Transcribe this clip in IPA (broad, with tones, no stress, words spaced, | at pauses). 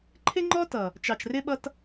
ǃʰɪ˦ŋ͡ǃɔ˦tʌ˨ | t͡ʃɑ˨t͡ʃrɪ˦ɓʌ˦t